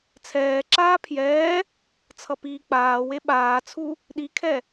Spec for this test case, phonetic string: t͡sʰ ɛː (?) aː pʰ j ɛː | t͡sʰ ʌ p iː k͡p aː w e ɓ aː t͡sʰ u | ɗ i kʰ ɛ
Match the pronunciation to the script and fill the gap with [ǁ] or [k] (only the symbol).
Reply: ǁ